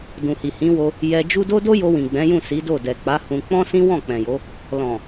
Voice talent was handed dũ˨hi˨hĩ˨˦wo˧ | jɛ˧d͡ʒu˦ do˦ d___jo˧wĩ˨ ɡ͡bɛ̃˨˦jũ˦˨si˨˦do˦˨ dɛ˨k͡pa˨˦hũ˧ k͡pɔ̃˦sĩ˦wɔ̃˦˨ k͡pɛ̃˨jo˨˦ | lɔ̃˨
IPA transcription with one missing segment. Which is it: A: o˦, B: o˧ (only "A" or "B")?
A